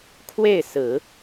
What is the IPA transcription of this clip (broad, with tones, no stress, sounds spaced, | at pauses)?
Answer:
kʰ w e˥˩ ɪ̯ s ɹ̩˨˩˦